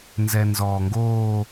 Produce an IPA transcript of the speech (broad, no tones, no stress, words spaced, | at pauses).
nzɛnzɔːŋɡoː